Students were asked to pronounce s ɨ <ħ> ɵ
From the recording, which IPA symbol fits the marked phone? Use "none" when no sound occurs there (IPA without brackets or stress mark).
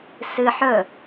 ħ